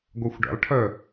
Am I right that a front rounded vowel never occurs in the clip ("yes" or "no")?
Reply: no